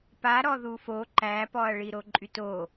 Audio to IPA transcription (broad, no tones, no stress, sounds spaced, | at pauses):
p a ɾ ɔ ð u f o ǃ æ p ɔ ɐ̯ ɭ i ɾ o ǃʼ y t o